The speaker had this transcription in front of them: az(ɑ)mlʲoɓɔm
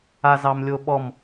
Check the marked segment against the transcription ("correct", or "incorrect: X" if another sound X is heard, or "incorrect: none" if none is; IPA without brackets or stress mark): correct